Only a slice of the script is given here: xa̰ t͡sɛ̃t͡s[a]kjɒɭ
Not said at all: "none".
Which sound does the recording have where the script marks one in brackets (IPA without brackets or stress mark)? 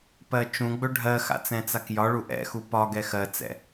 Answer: a